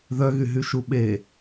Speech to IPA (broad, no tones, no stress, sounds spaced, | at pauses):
ð œ ɣ y ɦ y ʃ u ɓ e